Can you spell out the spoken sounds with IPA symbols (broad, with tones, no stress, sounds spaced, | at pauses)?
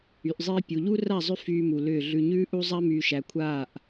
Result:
y˨ ʔ zˤ iː˦ pʲ u˨ ʎ u˦ r a˦˨ zˤ ʏ˦ f yː˦ m u˨ l ʏː˦˨ ɮ ʉ˨ ɲ ʉː˦ ʔ u˦ zˤ a˦ m yː˨ ʃ æ˨ kʷʰ aː˦˨ ʔ